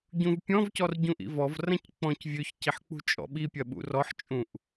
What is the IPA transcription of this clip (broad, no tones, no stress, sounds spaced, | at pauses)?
ɟ ũ v pʲ ɔ̃ v c ɔ r ɟ ũ ʔ ḭ v ɔ v r ɐ̃ c k͡p ɔ̃ c vʲ ø ç c i ħ k͡p ṳ t͡ʃʼ ɔ̰ ɓ i pʲ ɐ ɓ ṵ r ɔ ħ t͡ʃʼ ũ ʔ